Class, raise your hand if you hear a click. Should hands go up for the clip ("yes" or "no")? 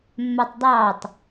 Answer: no